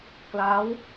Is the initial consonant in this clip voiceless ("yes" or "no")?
yes